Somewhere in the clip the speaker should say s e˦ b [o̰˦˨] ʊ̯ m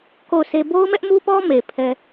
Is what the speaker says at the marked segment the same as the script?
no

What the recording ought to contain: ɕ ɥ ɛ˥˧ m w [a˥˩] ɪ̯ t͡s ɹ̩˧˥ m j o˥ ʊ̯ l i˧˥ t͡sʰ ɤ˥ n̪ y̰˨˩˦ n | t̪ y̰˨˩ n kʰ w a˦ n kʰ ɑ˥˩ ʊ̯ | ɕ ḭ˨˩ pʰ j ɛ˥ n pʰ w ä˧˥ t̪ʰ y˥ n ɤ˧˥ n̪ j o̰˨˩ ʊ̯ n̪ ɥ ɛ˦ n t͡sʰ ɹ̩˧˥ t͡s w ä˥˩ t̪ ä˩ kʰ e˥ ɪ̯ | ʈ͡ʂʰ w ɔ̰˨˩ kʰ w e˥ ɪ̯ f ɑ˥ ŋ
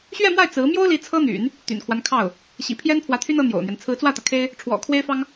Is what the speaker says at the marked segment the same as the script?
yes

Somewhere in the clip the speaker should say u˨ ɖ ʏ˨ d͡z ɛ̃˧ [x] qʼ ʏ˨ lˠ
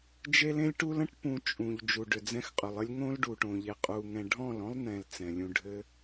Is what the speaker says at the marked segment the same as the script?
yes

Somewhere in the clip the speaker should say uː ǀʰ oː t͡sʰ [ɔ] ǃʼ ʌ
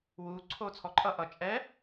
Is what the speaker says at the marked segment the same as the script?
yes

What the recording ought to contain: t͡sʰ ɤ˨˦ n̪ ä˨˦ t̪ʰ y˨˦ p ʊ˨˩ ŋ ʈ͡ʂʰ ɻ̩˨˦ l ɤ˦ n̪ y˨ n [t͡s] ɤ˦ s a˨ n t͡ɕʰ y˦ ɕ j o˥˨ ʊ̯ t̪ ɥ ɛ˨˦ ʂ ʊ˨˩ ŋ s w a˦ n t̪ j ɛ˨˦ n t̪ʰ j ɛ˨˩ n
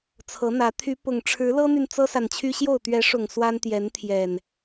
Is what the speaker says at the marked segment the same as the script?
yes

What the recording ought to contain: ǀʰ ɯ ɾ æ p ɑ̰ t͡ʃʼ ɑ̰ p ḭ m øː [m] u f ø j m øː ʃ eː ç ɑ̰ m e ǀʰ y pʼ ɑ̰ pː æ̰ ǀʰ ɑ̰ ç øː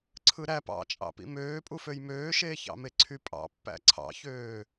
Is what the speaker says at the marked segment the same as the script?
no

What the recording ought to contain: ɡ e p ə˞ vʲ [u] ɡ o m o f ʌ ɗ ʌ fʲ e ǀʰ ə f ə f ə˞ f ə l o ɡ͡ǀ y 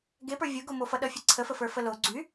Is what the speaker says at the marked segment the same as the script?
no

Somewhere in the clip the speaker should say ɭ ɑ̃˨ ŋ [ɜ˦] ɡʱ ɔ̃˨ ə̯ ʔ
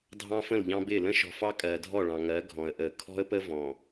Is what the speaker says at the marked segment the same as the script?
no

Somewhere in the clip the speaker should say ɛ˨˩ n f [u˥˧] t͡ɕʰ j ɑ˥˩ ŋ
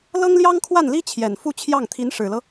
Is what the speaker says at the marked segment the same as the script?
yes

